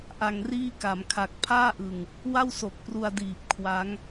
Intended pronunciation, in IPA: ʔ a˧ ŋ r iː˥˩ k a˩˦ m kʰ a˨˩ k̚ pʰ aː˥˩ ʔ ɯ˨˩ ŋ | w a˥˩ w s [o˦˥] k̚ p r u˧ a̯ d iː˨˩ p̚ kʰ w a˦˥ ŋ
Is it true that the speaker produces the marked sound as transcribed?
no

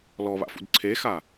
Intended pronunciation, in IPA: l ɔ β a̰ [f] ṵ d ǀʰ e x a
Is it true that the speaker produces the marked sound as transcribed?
yes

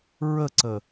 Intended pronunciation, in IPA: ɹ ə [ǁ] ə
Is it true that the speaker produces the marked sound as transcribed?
no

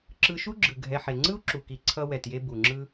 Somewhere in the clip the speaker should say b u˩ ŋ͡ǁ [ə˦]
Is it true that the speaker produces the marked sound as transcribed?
no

